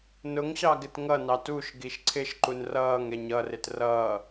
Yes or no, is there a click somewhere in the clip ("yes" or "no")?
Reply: yes